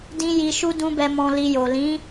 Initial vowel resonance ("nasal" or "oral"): nasal